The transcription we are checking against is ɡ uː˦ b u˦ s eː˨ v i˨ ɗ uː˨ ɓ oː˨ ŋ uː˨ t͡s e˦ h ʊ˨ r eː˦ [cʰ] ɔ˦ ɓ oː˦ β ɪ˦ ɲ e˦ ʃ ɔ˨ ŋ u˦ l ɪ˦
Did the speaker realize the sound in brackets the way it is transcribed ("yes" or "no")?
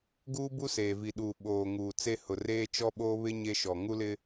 no